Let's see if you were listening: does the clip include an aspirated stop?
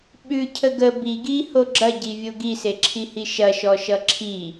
yes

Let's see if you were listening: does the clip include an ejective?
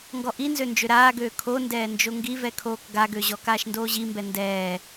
no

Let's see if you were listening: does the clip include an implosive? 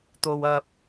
no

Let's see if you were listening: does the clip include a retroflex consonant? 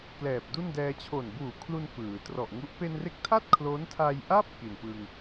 no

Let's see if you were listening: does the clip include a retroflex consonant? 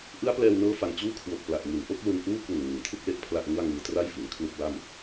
no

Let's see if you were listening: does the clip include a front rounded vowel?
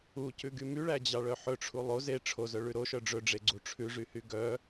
yes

